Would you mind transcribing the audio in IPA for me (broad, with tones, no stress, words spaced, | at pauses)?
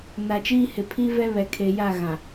na˨t͡ʃiː˦ hɪ˨pʰi˦vɛ˦ βɛ˨kʰe˨ja˦˨ ɣã˨